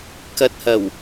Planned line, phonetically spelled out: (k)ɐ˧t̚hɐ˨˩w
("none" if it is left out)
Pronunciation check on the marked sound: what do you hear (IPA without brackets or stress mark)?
k